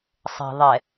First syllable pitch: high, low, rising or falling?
low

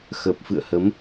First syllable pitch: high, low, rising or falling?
low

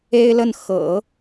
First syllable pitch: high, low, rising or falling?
high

